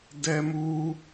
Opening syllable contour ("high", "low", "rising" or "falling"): high